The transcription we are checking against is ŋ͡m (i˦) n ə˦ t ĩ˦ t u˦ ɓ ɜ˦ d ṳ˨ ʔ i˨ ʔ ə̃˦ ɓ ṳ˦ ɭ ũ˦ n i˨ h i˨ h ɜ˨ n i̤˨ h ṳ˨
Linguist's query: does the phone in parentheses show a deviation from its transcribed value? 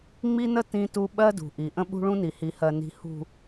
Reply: no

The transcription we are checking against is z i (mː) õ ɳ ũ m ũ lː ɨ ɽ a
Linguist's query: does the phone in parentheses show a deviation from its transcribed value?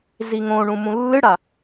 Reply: yes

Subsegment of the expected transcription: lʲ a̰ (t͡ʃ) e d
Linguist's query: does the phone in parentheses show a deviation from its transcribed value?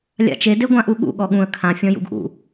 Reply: no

